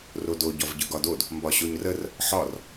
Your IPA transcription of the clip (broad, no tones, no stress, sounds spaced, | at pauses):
r o d o ɟ ɒ v ɟ ɯ ɡ ɒ d o d | m b ɒ ɕ o ɲ r ə r | ħ ɒ r